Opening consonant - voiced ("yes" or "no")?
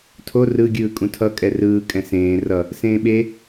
no